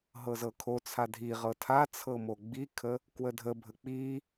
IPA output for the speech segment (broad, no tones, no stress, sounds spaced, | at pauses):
ɦ ɤ z ɤ kʰ o t͡sʰ a dʱ i ʁ ɤ tʰ a t͡sʰ ɤ m o ɡ͡b i kʰ ə | k w ə dʱ ə bʱ ə k͡p i